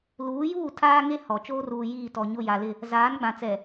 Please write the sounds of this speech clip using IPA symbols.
l uː˨˦ j uː˦˨ tʰ aː˦ ŋ e˦ h ɔ˨ t͡ʃ oː˦ r uː˨ j iː˦˨ t ɔ˨ ɲ ʊ˦˨ j a˨ l ɪ˦˨ | z aː˨˦ n ɡ͡b ã˨ t͡s ɛ˨

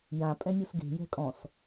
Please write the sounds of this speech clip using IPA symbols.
j ã pʼ ɛ̃ nʲ u s ɡ e̤ j ɛ̤ kʼ ɔ̃ s

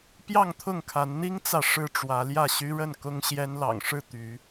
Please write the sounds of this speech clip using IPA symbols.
p j ɑ˥˨ ŋ t̪ʰ ʊ˥˨ ŋ kʰ a˨˦ n n̪ i˦ ŋ t͡s ä˨ ʂ ɻ̩˥˨ ʈ͡ʂ w ä˨˦ l j ä˥˨ ɕ y˦ ɻ ə˥˨ n k ʊ˦ ŋ ɕ j ɛ˦ n l ɑ̰˨˩ ŋ ʂ ɻ̩˥˨ t̪ y˨˦

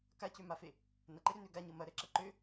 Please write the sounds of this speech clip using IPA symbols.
k a c ø m a f e | n ɐ ǃ e ɾ ø n ø ɡ a ɲ ɤ m ɐ ɾ ɛ ǁ ɐ ǃ ø

